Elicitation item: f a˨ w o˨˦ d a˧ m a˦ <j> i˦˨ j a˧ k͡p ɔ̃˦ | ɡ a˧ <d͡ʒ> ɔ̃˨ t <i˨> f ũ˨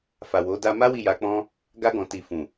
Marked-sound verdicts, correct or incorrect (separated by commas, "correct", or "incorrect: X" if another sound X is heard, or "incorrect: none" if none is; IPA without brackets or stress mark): incorrect: w, incorrect: ɡ, correct